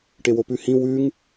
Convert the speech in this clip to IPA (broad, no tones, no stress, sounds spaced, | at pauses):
ʈ e w o p ʉ h ĩ w ʉ ŋ